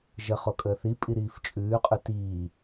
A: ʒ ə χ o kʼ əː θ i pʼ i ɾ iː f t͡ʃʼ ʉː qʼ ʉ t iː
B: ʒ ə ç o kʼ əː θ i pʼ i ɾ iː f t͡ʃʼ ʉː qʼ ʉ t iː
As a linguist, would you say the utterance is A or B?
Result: A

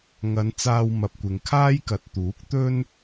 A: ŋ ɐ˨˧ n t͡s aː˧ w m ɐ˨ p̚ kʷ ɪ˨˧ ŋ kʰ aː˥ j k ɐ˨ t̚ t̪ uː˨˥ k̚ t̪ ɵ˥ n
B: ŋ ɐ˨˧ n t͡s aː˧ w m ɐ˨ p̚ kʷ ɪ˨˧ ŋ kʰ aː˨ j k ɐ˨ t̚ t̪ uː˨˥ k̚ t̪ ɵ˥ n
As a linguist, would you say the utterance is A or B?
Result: A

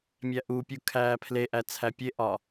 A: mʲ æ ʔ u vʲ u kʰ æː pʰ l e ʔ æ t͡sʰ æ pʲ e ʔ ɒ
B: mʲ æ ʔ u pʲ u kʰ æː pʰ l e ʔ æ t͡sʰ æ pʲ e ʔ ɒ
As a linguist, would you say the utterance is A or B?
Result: B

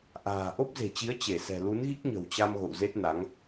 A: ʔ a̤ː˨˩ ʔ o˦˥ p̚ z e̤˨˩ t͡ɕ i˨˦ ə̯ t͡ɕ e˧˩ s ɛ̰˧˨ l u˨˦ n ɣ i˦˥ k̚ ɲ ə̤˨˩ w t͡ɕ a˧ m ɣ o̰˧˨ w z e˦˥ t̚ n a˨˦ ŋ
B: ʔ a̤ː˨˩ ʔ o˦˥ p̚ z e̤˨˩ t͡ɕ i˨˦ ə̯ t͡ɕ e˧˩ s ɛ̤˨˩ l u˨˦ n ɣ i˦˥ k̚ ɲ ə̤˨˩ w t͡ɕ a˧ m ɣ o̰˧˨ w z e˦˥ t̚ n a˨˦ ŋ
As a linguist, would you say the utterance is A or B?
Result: B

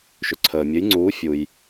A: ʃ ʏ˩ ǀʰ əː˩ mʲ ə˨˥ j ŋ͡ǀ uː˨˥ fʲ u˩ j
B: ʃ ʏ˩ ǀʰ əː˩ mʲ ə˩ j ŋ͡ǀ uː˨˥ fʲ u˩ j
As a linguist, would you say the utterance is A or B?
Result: A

